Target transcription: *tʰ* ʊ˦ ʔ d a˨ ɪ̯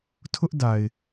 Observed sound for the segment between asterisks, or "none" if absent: tʰ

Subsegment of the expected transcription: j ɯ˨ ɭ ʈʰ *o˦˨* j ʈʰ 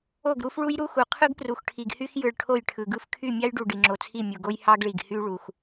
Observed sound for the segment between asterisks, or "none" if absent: o˦˨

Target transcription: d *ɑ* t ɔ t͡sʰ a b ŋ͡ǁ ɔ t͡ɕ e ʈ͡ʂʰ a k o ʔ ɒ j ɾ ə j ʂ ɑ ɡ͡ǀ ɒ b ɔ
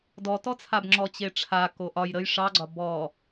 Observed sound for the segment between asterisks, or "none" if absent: ɔ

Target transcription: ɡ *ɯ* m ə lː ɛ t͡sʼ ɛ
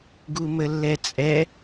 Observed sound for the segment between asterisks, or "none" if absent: u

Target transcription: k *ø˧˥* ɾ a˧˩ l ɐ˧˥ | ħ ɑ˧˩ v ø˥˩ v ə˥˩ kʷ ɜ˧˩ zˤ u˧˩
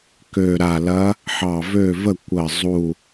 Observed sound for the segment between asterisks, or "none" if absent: ø˧˩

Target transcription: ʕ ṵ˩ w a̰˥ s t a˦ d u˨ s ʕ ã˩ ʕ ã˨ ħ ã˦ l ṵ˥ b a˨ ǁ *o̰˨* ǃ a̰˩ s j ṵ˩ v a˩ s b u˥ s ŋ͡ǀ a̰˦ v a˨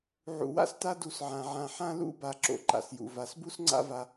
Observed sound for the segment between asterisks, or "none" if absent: o̰˨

